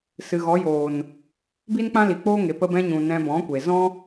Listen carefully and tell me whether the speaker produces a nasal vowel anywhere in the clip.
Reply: yes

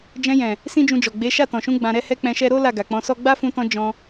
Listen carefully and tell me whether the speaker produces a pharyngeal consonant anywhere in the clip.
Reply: no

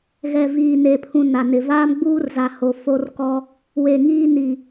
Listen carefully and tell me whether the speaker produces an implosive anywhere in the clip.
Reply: no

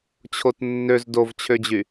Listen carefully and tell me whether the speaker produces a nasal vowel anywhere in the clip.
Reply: no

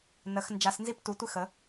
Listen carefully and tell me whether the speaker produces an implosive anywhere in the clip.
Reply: no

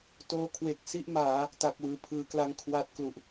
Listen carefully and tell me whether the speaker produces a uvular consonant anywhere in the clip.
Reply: no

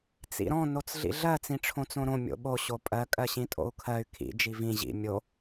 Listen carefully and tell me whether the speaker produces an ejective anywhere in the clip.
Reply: yes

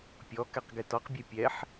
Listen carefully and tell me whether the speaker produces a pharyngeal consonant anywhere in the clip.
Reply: yes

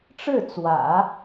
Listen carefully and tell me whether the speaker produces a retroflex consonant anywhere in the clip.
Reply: yes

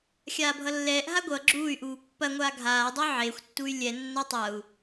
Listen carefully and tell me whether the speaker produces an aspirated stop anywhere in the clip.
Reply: no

